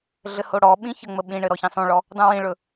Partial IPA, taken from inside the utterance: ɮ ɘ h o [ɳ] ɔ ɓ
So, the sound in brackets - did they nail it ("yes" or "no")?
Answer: no